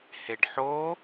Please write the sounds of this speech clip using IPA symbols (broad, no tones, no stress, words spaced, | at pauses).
heɖħo